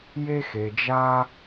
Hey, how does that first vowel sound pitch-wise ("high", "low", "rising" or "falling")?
high